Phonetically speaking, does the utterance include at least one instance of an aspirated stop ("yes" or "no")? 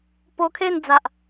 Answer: yes